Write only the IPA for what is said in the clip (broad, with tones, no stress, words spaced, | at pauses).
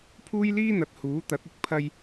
pʰuː˥jliː˥n̪ɐ˨˥t̚ huː˨˥t̪ɐ˨˥t̚ɪ˥k̚ pʰɐ˥j